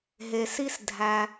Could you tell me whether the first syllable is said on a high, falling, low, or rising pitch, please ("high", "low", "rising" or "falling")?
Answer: low